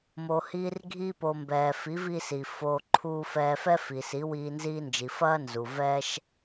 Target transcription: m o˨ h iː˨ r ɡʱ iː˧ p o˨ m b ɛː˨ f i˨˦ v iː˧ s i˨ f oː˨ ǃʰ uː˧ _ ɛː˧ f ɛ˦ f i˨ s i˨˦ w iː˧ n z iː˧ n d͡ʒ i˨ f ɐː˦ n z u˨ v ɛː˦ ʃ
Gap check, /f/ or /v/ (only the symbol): f